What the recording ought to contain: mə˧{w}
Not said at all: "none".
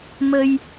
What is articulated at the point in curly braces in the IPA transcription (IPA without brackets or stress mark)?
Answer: j